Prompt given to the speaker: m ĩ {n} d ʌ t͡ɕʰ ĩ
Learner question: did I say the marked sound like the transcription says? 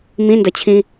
yes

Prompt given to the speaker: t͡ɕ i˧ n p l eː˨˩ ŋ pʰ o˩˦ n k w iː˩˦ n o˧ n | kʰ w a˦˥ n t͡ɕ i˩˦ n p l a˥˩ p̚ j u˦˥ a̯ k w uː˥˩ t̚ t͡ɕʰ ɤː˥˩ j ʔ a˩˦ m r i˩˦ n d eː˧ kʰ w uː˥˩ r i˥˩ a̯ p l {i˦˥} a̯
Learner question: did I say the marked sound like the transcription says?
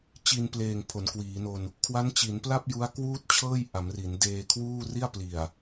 no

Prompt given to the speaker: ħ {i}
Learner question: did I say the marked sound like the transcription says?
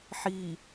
no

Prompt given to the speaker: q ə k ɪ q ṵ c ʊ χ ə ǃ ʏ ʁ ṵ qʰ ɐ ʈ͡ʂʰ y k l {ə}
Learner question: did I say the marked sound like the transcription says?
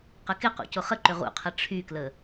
yes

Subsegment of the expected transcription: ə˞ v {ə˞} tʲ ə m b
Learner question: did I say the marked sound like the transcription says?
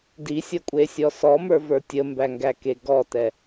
yes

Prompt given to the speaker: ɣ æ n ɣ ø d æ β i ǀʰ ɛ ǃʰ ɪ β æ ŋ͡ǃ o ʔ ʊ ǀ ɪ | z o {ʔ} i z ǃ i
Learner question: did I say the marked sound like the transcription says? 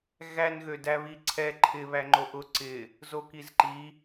no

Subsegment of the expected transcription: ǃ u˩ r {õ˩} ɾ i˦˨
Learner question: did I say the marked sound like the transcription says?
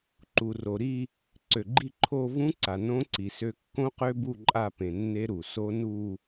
no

